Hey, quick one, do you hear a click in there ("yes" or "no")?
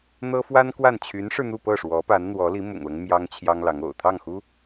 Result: no